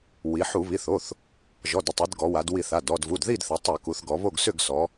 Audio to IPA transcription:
w i˩˧ ħ u˧˩˧ β i˩˧˩ θ o˩˧˩ θ | ʒ ɔ˩˧˩ d ə˥˨ tˤ i˩˧ d ɡ ɔ˩˧ w a˩˧ d w i˧˩˧ θ a˩˧˩ d ɔ˥˨ d v u˩˧˩ d ð i˥˨ d θ ə˩˧ tˤ ə˧˩˧ k u˩˧ θ ɡ ɔ˩˧ β o˥˨ ɡ s ʏ˥˨ ɡ s ɔ˩˧

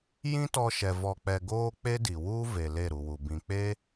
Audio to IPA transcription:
j ĩ˦ t ɔ˧ ʃ ɛ˨ v ɔ˨ k͡p ɛ˨ ɡ oː˧ k͡p e˦ d i˨ w u˦ v e˨ l e˦˨ ɾ u˨ w u˨ b ĩ˨ k͡p e˦

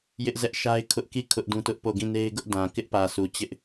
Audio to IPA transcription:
j ɪ˦ ʔ z ɛ˦ ʔ ʃ a˦ ɪ̯ kʰ ʊ˦ ʔ k i˦˨ kʰ ʊ˦ ʔ d ũ˦ t ʊ˦ ʔ p o˦˨ ɡ ĩ˦˨ n e˦ ɪ̯ ɡ ʊ˦ ʔ d ã˨ k ɪ˦ ʔ p ä˨ sʰ u˨ t͡ɕ ɪ˦ ʔ

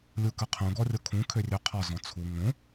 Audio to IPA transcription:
lʲ u k ə qʰ ũ ɡ ɔ rʲ o kʰ ũ kʰ ø rʲ ø qʰ ɒ z ɔ̃ t͡sʰ u ŋ õ

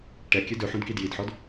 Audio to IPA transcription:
ʈ ɛ kʲ ɵ d ɵ ħ ũ d k i d j i d ħ ɔ d

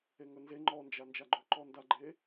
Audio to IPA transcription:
e ŋ ɵ n z e ŋ͡ǃ ɔ n d͡ʒ a n d͡ʒ a ɡ͡ǃ ɵ ǃ ɔ n d a ɡ͡ǃ e

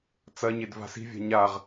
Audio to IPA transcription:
t͡s ɐ ɲ e d v a̤ s i̤ vʲ a̤ ɲ a ʁ

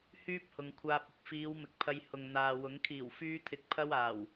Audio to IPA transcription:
h yː˥ p̚ h ʊ˨ ŋ kʷʰ aː˧ p̚ ɪ˨ k̚ f iː˨˧ w m ɪ˨ k̚ pʰ ɐ˧ j h ʊ˨ ŋ n̪ aː˨ w ʊ˨˥ ŋ kʰ iː˨˩ w f yː˧ t̪ʰ ɪ˨ k̚ pʰ ɐ˥ w aː˨˩ w

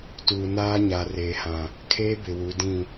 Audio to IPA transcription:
t uː˨ n aː˦ ɲ a˨ r eː˨ h ã˨ | kʰ eː˦ b ɪ˨ w u˨˦ d ĩ˦˨

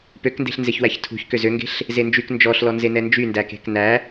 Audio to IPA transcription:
p ø k n d e̤ ɬ n z e ç w æ ç tʰ ṳ ç k ø z ø ŋ ɡ e̤ ɬ | z e n d͡ʒ y k n d͡ʒ ɔ ɬ l ɔ n z e n ɛ n d͡ʒ y n d æ k e̤ k n æ

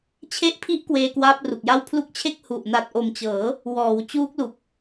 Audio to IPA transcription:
t͡ɕʰ e˦˥ ʔ pʰ i˦˥ ʔ k w eː˧ k w aː˦˥ p̚ r u˨˩ k̚ j a˥˩ w pʰ l u˦˥ k̚ t͡ɕʰ e˥˩ k̚ h u˨˩ ʔ n a˨˩ t̚ ʔ o˨˩ m t͡ɕ ɤː˩˦ | w ɔː˩˦ w t͡ɕ uː˦˥ k̚ l u˨˩ k̚

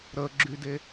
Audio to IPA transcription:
ɾ ə ɡ͡ǁ y d e

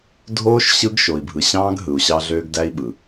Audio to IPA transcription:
dʱ oː˦ ʃ ɕ ɯ˦ ɡ ʃ o˨ i̯ bʱ ɯ˨ ɕ ɑ̃ː˦ ɡ ɦ ɯ˨ u̯ ɕ ɑ˦ ɮ øː˦ ɡ d æ˦ i̯ ɓ ɯ˨

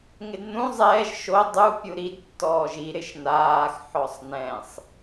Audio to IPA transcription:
ŋ ɪ d n ũ zˤ ɛː ʒ ʃ o dˤ u pʲ u ɾ i d tː ɔː ʒ i ɾ ɪ ʃ n aː x ħ ɔ sˤ n ɛ̃ sˤ

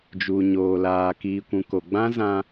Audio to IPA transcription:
d͡ʒ uː˨ ɲ oː˨ l aː˨ k iː˨ kʷ ũ˨ k o˨ ɡ͡b ã˦ z ã˦

